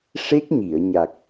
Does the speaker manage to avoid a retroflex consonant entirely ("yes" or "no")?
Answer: no